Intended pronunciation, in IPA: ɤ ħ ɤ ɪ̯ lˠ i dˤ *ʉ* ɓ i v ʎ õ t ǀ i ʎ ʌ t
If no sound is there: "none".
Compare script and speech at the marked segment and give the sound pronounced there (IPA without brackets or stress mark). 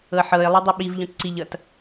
ʉ